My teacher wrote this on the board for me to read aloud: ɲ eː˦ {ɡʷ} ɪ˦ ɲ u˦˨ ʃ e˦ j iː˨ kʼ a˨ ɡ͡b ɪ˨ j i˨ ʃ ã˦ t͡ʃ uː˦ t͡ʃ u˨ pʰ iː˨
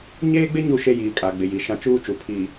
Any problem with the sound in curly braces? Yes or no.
yes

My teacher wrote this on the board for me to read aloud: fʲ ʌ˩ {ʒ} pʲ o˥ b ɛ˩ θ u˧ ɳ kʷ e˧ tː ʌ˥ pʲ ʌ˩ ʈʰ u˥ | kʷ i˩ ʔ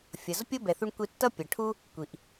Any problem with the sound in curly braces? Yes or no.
yes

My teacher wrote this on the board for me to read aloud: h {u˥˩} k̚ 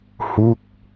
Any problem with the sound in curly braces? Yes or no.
no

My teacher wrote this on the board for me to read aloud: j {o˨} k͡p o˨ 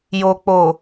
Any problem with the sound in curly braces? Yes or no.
no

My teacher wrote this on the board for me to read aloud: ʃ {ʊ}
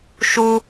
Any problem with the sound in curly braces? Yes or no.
yes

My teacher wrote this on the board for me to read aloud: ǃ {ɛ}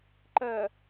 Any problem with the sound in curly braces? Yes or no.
yes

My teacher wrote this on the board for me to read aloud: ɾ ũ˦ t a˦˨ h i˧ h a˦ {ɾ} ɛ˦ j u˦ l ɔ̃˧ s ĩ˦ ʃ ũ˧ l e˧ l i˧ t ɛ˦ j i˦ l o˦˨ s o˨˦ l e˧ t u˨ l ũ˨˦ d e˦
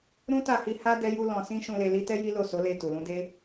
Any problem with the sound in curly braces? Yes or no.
yes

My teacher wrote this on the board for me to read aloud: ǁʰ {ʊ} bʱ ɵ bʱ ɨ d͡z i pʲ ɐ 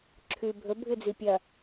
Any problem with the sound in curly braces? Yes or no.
yes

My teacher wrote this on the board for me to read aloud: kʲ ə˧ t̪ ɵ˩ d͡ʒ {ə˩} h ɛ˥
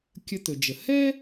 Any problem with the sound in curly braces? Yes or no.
no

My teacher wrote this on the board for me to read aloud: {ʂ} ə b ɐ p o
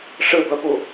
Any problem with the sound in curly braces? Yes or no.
no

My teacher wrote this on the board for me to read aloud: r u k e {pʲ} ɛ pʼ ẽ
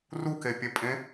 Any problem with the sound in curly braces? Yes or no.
no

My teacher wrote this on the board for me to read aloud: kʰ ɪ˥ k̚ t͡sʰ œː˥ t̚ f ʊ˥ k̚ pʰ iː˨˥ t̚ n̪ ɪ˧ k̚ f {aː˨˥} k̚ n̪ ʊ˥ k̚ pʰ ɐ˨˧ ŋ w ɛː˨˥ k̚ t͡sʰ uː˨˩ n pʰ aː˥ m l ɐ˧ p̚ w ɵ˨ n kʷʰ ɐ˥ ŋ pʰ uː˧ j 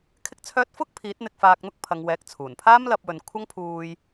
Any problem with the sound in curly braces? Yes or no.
yes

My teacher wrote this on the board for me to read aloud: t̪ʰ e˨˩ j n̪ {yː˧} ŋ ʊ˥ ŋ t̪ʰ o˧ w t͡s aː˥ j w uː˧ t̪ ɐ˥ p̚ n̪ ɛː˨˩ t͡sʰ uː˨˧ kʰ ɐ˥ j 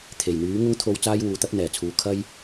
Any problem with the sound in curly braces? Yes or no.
yes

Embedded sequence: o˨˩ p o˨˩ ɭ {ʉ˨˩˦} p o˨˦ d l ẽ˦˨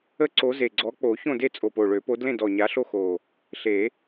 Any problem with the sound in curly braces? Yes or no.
yes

